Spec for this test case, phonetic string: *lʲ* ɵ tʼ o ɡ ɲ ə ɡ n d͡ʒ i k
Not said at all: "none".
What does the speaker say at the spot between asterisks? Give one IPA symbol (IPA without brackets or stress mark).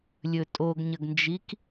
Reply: lʲ